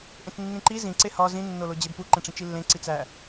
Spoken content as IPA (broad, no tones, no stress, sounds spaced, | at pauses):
ʔ ẽ t͡s nː ĩ ǃ i z ĩ ǀ e h ɒ z ĩ nː o l o d͡ʑ e b p u ǃ ẽ ʈ͡ʂ ĩ t͡ʃ i lː ẽ ǀ i t͡s æ